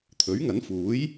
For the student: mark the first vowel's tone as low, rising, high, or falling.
rising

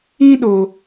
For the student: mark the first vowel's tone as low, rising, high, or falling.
high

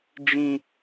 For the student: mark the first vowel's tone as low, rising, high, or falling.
high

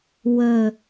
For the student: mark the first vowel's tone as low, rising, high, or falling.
low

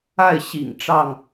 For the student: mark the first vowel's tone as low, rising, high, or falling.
falling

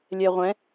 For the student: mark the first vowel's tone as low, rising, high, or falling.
low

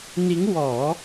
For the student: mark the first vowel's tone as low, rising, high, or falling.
rising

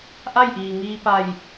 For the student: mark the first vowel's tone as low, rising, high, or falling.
falling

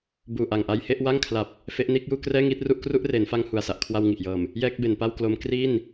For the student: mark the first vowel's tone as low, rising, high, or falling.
low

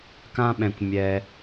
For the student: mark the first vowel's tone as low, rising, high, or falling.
high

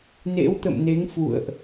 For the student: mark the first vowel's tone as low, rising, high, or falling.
rising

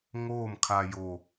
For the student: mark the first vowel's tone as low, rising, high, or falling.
falling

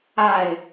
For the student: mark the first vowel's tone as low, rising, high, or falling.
falling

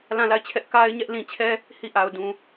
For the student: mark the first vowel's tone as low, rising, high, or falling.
falling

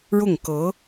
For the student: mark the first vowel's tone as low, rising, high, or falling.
falling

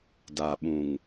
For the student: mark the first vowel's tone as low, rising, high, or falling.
low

